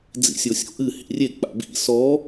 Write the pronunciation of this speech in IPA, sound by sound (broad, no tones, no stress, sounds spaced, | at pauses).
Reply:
d͡z ḭ sʲ o sʲ o̰ ʔ ɨ h ḭ rʲ e k͡p a̰ b ḭ s ɔ